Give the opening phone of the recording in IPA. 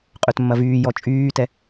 qʼ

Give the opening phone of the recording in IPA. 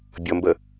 bʲ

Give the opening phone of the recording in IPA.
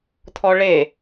t̪ʰ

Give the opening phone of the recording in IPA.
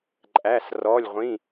ǃʼ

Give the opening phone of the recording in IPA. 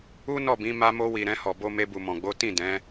u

